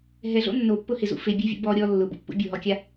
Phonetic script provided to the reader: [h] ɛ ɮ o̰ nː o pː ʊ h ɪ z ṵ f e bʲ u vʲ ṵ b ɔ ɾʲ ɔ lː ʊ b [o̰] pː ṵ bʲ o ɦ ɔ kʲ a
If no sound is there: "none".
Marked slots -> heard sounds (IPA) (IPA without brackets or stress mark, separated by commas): ɦ, o̰